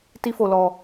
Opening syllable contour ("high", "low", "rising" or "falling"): high